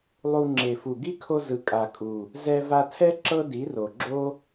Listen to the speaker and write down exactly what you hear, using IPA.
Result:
lˠ u˧ ŋ͡ǁ e˨ f u˨ ɡ i˦ kʰ o˧ z ɯ˨ kʼ a˨ kʼ u˨ | z ɛ˧ v a˧ tʰ ɛ˦ ǁ ɤ˦ d i˨˦ r o˨ ɡ͡ǁ o˦

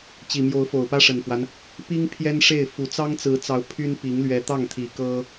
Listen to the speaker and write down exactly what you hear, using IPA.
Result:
t͡ɕ i˨˩ m j o˧˥ ʊ̯ f o˨˩ ʊ̯ p ä˥ ʂ ə˨˩ n f w a˦ n | p i˥ ŋ pʰ j ɛ˥ n ʂ e˥˩ ɪ̯ f u˨˩ t͡s ɑ˥ ŋ t͡s ɹ̩˧˥ t͡s ɑ˧˥ ʊ̯ pʰ y˥ n p i˧˥ ŋ l ɥ ɛ˧˥ t̪ ɑ˥˩ ŋ t̪ʰ i˨˩ k ɤ˥

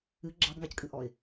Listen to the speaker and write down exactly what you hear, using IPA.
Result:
ɨ ɡ͡ǁ ɑ b ŋ ɑ c kʼ ɨ ʔ ɔ ɪ̯

